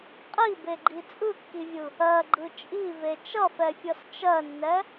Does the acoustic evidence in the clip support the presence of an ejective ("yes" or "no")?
yes